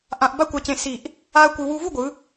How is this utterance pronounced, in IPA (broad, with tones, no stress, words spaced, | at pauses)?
ʔã˧ʔba˥kʷa˧cẽ˧ si˧˩ʔ | a˥ɐ̯kʷɯ˧ wu˧vu˥˧ɡʷɯ˩˧